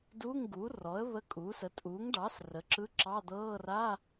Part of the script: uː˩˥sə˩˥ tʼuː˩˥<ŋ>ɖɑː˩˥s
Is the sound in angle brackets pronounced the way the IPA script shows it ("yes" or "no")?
yes